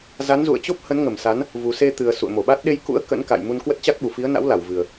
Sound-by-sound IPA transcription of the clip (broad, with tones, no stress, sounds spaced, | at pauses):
z a˨˦ n z ṵ˧˨ ə̯ t͡ɕ o˦˥ p̚ h ə˨˦ n ŋ ə˧˩ m s a˨˦ n | v u˨˩ s e˧ t̪ ɨ˨˩ ə̯ s ṵ˧˨ ə̯ m o˧˩ ɓ a˦˥ t̚ ɗ e˧ j k ṵ˧˥ ə̯ k ə̰˧˥ n k a̰˧˨ j m u˧ n k w ə˦˥ t̚ t͡ɕ a˦˥ k̚ ɓ u˧˩ f i˨˦ ə̯ n a̰˧˥ w l a˧˩ w v ɨ˨˩ ə̯